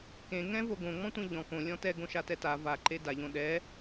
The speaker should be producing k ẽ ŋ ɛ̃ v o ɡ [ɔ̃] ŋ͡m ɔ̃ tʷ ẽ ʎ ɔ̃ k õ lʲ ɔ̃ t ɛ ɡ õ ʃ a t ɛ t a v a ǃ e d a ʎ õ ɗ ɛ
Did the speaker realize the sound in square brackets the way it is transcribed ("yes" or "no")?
no